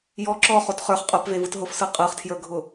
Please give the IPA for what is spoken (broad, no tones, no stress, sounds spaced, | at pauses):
j ɔ ǁ ɔ χ o t χ ə˞ χ qʼ œ p v e v ɯ t ɦ ʊ f s ɯ qʼ ɯ χ tʰ j ə˞ ɡʱ ʊ